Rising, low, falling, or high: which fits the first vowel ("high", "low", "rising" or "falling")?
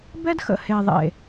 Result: high